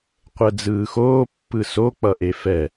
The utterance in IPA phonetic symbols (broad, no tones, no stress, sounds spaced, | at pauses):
qʷ ɛ d͡z ɯː x oː pː ɯ s o k͡p ʌ ʔ e f ɛ